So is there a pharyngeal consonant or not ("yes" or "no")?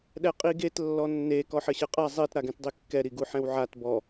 yes